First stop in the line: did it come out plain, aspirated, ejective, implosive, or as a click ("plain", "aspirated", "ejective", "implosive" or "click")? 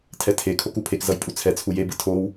aspirated